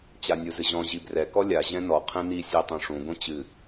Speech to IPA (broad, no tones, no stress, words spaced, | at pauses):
t͡ɕanʲuzɨʑɔ̃ ʑibrɛkɔ lʲaʑɛ̃ nɔ qʰɛ̃ni sʲetˤũʂũɡõ t͡ɕɨ